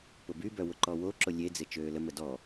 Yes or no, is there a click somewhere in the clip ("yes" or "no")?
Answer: yes